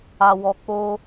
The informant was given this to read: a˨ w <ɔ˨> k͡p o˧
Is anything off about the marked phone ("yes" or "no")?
no